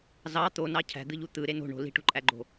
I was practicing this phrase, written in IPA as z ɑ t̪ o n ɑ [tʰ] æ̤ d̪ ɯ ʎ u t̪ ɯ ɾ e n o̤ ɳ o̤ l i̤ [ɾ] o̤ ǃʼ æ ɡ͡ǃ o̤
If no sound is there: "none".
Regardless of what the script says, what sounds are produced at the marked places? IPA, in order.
cʰ, ʈ

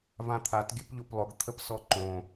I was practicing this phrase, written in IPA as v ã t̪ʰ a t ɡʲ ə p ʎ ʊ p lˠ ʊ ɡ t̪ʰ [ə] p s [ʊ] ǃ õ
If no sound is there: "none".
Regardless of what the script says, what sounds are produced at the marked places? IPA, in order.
ə, ɔ

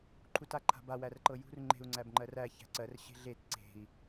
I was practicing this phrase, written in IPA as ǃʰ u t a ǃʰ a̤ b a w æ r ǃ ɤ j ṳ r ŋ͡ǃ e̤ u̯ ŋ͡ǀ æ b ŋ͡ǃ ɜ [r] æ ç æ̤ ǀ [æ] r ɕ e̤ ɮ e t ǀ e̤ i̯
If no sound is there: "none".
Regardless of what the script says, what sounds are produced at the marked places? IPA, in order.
r, ɜ

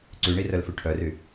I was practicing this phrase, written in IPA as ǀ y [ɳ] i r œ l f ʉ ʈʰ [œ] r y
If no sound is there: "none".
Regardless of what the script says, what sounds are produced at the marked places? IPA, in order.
ɳ, œ

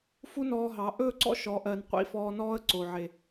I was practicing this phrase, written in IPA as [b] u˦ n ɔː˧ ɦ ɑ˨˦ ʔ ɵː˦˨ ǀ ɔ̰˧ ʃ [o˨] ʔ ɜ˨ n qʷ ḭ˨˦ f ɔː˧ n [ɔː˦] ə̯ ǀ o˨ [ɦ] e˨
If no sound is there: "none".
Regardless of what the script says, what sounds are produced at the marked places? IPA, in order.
f, ɔ˨, ɔː˦, ʕ

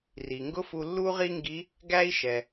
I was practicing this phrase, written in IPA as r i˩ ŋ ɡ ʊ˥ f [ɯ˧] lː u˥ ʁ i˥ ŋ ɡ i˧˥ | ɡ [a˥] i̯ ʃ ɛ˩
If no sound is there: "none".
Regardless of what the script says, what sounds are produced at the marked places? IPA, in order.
u˧, æ˥

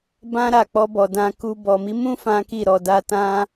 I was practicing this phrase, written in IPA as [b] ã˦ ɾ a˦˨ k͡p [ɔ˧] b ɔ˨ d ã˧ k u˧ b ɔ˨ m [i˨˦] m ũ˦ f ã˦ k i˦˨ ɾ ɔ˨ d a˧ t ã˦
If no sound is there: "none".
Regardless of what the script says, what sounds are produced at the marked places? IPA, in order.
b, ɔ˧, i˨˦

